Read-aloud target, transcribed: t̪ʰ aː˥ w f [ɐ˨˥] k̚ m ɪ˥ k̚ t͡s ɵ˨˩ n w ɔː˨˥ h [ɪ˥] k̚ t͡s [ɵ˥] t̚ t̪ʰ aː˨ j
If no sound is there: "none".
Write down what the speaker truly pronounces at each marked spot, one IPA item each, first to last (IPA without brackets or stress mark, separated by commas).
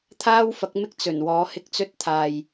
ɐ˨˥, ɪ˧, ɵ˥